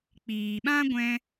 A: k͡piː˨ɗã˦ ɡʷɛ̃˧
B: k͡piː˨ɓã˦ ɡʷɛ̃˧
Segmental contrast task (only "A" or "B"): B